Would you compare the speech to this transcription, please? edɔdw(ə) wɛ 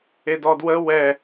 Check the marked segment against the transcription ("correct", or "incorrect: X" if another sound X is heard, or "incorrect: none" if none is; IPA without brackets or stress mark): correct